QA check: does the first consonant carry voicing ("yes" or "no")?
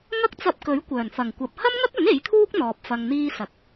yes